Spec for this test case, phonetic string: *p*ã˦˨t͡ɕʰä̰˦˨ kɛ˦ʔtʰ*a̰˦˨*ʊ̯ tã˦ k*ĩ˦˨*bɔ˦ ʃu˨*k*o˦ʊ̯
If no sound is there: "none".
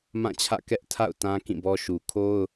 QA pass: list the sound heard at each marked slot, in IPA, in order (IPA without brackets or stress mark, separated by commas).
m, a̰˦˨, ĩ˦˨, kʰ